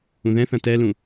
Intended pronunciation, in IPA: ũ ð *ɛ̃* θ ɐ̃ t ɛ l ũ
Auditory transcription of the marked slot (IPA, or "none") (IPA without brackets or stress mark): ɛ̃